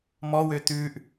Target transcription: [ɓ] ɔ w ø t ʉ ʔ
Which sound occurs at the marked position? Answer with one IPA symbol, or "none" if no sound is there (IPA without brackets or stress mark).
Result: m